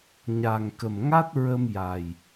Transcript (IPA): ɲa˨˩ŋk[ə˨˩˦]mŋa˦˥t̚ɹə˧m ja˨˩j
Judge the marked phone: incorrect: ə˨˩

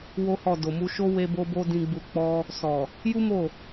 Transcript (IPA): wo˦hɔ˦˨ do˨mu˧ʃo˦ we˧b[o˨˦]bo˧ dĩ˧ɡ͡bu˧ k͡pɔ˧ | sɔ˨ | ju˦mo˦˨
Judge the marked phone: incorrect: o˧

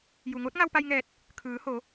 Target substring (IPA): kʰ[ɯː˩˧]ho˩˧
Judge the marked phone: correct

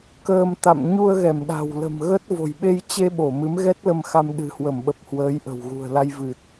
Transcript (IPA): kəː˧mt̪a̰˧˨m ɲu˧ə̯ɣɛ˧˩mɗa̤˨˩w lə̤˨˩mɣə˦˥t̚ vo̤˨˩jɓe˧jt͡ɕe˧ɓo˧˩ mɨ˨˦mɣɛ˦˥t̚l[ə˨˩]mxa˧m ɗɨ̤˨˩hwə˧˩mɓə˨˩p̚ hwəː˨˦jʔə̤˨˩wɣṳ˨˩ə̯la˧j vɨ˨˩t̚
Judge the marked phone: incorrect: ə˧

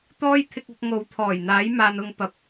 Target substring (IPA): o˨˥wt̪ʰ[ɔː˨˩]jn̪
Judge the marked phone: correct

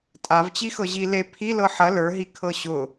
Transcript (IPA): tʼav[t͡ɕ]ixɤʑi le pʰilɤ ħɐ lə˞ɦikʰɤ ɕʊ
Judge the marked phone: correct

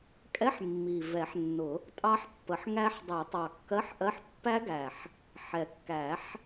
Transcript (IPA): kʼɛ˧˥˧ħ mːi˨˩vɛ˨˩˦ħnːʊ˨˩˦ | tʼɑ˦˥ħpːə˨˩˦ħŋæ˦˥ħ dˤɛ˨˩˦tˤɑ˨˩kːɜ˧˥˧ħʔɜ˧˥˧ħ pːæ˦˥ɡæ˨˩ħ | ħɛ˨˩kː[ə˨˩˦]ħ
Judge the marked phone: incorrect: æ˨˩˦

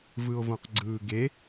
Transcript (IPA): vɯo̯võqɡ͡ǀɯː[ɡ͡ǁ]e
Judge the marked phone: incorrect: ɡ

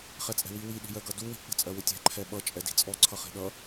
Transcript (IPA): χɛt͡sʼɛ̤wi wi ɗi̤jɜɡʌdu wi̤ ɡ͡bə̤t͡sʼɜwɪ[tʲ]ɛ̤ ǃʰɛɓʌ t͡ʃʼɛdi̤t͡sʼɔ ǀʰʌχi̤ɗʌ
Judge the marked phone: correct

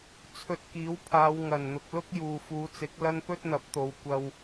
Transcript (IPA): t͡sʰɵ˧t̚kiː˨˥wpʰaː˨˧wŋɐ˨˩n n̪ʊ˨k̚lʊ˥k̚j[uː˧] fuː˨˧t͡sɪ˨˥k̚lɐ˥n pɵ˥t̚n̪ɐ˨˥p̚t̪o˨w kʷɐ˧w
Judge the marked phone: incorrect: uː˨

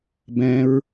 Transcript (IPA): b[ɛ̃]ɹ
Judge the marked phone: correct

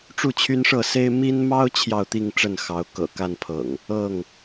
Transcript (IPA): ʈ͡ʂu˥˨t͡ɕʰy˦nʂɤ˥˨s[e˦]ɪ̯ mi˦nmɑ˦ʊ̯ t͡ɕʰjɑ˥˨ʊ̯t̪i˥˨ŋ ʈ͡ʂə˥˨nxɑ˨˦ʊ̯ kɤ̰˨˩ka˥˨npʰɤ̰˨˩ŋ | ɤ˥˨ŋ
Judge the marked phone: correct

